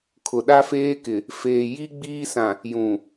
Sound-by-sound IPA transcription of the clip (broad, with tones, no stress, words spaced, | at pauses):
kʰʊ˨ɗa˦feː˦kɪ˨ | feː˨ji˦ɡ͡biː˦sã˨ | jũ˨